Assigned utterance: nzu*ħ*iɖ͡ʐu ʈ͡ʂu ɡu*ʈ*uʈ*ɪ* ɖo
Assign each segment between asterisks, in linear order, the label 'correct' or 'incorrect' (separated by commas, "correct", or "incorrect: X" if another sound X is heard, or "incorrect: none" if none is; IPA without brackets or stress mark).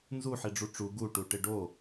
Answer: correct, correct, correct